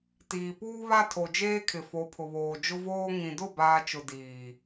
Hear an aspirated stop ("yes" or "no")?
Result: yes